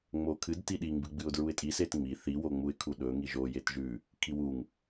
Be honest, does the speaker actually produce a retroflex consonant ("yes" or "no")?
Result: no